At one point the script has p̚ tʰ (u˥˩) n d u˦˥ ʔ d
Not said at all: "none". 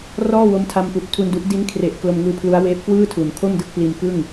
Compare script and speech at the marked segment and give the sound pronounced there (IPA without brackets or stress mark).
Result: u˧